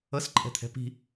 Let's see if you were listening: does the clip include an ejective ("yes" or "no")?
yes